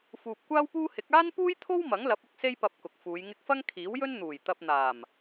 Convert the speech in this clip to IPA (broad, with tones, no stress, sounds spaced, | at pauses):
f uː˨ p̚ kʷ aː˥ w p uː˥ h ɪ˨˥ k̚ aː˥ n p uː˥ j t̪ʰ o˥ w m ɐ˨˥ ŋ l ɐ˨˥ p̚ ʊ˧ k̚ s e˥ j p ɐ˧ p̚ k ʊ˨ k̚ f uː˨˧ j ŋ ɪ˧ k̚ f ɐ˥ ŋ kʰ iː˨˥ w j ɵ˥ n n̪ uː˨˩ j t̪ ɐ˧ p̚ n̪ aː˨˩ m